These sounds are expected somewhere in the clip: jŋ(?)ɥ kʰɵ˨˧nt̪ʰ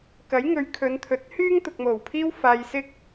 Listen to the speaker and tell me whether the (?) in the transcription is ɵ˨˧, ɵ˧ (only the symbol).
ɵ˨˧